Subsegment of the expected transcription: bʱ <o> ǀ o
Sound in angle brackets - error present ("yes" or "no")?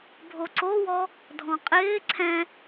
no